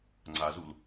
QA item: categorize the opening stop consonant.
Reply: click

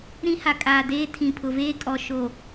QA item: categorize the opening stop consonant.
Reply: ejective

